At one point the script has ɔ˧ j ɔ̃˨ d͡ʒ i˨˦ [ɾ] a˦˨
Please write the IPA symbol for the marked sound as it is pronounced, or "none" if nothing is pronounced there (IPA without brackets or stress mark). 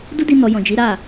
ɾ